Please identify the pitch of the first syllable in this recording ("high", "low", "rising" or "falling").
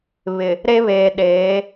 low